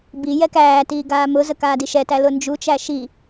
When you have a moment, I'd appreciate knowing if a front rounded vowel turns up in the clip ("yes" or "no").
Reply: no